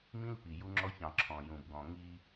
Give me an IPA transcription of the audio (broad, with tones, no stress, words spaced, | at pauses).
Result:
mĩ˦lpi˨ju˦ŋ͡ǁɔ˦ç ɑ̃˨ ǁʰɔ̃˨ jũ˨bɡɔ̃˨ŋi˦